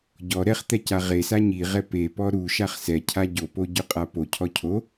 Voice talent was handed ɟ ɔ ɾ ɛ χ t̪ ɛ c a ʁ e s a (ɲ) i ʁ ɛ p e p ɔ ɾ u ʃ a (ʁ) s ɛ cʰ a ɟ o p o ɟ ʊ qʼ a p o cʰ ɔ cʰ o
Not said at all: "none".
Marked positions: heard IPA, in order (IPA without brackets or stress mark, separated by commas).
ɲ, χ